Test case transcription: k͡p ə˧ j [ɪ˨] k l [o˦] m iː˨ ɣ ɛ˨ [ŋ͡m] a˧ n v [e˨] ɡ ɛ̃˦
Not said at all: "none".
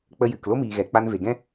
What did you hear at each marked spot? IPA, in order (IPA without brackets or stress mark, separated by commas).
ɨ˨, o˦, k͡p, e˨